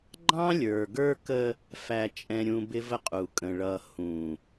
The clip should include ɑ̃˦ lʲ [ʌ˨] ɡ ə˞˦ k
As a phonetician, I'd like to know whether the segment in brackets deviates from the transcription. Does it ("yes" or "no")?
yes